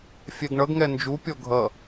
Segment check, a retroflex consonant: present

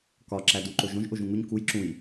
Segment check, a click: present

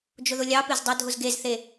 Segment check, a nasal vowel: absent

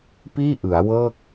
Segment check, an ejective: absent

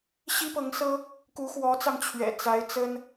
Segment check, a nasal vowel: absent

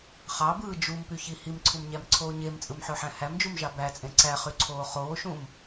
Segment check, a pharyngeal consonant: present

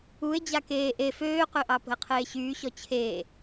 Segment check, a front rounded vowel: present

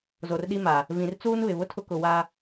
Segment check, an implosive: present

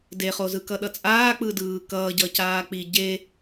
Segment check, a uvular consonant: present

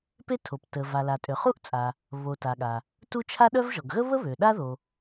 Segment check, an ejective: present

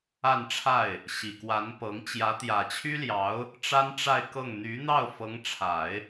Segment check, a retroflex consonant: present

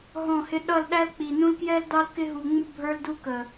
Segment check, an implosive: present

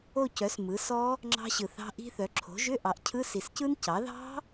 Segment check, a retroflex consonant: absent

